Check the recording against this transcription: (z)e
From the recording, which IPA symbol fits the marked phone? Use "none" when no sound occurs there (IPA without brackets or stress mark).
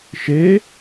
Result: ʃ